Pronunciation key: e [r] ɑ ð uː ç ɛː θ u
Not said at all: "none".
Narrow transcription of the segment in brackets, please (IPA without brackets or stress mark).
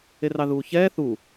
r